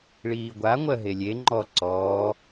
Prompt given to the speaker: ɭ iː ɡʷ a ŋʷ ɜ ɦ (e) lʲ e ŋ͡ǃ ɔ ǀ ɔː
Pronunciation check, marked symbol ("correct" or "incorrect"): correct